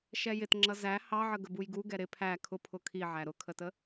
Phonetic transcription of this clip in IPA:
ʃɛjɪtŋ͡ǁʌ zæ hɑʕə ɡəbujɡu ɡɛɾɪ pʰæ kʰʊpʰʊ kʰiʕæ ɾʊkʰətə

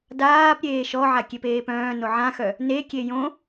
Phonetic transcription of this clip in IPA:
daːp ɾʲeːʃɔʕa kʲepeːpœ̃ː noʕãxœ | nekʲe jõ

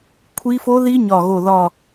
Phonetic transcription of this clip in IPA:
kʷʰi˦˥ fo˦˥ði˦˥ ɲɒ˦˨ɣo˦˨ ðɒ˦˨

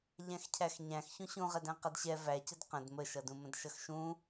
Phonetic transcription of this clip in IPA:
ʎæ̃xcʰæxɲæ̃x çũɕũʁɛdæ̃ qʌdɕɛ væcəd qə̃d məʃʌdũmə̃d ʃʌxʃũ

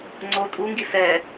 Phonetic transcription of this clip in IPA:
ŋ͡ǀo tʼuŋɡi sɛ

